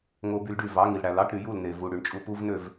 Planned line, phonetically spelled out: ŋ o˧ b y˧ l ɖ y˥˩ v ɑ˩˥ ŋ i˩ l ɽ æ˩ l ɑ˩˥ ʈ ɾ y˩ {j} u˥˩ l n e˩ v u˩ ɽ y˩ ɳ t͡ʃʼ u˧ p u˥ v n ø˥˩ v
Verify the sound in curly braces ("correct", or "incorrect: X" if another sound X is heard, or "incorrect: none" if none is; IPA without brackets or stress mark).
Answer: correct